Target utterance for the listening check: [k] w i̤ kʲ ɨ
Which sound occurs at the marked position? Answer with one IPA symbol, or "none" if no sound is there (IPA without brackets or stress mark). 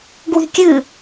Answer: ɡ